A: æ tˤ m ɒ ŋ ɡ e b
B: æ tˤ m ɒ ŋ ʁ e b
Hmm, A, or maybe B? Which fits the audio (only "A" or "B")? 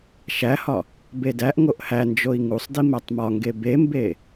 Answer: A